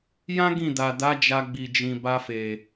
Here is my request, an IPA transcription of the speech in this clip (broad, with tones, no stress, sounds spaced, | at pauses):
j ã˦ ɡ ĩ˦˨ d a˨ d a˨˦ d͡ʒ a˧ ɡ͡b i˨ d͡ʒ ĩ˨ b a˧ f e˨